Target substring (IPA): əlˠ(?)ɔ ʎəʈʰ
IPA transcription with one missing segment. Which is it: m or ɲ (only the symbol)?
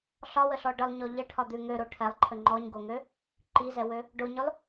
ɲ